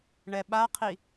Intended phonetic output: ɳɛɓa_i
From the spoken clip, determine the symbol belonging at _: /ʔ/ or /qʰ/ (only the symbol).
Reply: qʰ